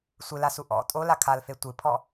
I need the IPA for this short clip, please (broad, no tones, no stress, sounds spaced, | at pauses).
sʷ ɨ l a s u ʔ ɔ̰ tʼ o l a kʰ a l f e tʷ ɨ pʰ ɔ